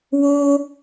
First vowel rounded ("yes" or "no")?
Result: yes